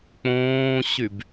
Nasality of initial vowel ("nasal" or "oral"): nasal